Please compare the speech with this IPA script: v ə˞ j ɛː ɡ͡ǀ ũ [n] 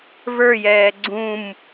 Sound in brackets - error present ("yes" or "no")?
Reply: yes